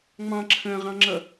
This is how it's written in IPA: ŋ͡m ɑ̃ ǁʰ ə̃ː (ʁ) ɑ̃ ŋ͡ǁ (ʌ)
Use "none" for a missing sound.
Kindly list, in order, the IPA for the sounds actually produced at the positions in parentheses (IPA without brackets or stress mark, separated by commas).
ʁ, ʌ